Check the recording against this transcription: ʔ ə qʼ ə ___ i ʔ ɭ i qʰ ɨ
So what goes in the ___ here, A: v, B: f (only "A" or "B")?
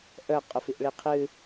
B